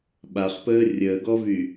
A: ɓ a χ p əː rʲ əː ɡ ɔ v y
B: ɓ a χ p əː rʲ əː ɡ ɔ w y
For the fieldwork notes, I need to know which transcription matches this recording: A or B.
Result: A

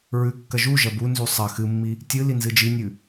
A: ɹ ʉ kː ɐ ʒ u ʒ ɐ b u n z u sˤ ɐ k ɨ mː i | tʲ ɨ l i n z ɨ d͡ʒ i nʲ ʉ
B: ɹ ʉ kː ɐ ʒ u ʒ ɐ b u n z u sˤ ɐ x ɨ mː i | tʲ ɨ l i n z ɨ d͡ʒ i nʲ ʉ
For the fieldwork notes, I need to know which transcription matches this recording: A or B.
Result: B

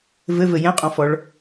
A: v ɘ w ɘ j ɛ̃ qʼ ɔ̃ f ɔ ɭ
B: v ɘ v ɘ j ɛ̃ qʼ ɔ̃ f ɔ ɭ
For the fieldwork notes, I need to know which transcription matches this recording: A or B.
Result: B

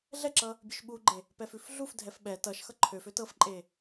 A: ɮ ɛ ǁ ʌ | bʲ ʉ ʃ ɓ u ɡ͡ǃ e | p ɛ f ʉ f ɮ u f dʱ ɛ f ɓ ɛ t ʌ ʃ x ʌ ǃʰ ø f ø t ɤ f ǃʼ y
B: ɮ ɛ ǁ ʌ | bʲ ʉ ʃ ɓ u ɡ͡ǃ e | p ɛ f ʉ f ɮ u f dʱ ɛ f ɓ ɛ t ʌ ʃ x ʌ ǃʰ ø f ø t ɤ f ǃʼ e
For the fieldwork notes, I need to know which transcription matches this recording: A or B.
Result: B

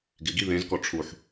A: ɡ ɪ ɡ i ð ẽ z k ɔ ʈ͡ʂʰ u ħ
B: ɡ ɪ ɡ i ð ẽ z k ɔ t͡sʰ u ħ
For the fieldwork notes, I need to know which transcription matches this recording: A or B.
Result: A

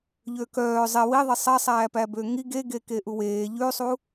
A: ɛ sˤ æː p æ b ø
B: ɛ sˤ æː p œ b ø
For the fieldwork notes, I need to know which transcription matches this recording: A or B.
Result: A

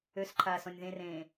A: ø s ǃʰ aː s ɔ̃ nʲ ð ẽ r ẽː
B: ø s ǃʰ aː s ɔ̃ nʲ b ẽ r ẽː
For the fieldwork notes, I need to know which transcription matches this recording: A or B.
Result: A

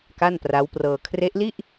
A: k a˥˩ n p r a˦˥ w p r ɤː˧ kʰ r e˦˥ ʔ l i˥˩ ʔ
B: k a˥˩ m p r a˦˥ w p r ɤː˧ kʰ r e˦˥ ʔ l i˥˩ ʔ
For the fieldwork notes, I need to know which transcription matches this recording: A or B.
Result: A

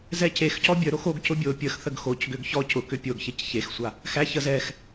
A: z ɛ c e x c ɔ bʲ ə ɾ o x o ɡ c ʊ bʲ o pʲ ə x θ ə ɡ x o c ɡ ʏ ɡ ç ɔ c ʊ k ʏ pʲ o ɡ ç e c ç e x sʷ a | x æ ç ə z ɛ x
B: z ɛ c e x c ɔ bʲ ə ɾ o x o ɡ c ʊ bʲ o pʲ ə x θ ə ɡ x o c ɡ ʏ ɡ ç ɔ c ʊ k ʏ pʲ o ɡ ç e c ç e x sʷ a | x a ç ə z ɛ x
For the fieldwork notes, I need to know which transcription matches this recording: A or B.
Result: A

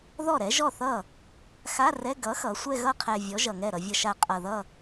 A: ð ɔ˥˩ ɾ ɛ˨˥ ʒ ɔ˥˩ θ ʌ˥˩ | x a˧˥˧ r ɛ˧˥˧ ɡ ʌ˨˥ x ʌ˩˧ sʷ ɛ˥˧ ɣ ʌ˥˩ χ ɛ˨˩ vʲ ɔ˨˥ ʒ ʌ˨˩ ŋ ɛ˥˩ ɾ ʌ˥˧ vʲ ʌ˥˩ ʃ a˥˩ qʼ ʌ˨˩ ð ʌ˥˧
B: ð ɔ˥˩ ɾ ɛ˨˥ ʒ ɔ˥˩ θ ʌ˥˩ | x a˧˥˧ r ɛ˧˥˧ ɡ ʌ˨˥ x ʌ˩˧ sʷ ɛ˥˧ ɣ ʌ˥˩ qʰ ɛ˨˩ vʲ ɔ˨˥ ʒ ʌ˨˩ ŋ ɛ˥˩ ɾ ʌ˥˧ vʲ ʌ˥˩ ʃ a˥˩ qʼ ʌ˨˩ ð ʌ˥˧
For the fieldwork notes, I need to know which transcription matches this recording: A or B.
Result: B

